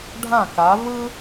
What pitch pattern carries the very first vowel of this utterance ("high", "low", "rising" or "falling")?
falling